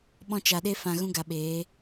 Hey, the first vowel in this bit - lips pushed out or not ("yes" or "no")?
yes